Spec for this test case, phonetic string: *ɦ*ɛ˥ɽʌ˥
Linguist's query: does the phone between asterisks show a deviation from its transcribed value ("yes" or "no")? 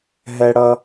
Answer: no